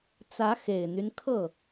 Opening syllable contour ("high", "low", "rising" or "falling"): rising